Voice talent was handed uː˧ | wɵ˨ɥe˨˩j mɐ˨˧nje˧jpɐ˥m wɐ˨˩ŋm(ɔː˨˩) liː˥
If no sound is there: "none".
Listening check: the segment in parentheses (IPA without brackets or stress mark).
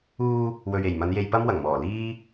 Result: ɔː˨˩